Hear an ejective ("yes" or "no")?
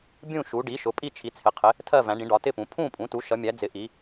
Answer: yes